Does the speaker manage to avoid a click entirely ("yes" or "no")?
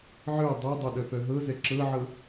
no